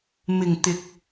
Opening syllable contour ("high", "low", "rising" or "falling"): low